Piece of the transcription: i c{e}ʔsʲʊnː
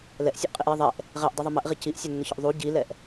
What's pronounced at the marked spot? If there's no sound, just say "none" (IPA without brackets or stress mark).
i